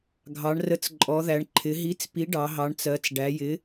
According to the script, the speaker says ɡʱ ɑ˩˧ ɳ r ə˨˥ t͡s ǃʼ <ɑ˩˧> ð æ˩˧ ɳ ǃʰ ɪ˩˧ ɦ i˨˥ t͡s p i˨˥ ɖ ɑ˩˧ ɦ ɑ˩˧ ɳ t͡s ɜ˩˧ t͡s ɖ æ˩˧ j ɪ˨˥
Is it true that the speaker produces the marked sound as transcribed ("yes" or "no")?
no